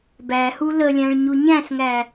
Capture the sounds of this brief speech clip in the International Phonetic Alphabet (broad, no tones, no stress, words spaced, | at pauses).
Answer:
bæhu ləlʲæ̃ɭɲu ɲæ̃sŋæ